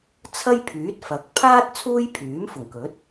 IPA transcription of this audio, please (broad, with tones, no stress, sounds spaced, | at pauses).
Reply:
t͡sʰ ɐ˥ j pʰ yː˨˥ t̚ f ɐ˨˥ k̚ pʰ aː˥ t̚ t͡sʰ uː˥ j pʰ yː˨˥ m f ʊ˨˩ ŋ k ɵ˨˥ t̚